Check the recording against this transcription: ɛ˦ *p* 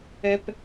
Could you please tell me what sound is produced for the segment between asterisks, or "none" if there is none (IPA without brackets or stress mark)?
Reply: p